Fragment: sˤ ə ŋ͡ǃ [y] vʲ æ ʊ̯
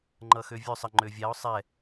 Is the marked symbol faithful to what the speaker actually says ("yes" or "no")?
no